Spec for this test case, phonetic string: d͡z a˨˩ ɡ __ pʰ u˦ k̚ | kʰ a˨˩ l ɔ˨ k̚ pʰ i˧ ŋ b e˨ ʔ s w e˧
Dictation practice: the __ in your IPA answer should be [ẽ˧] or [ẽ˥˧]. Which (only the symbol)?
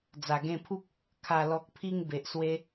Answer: ẽ˧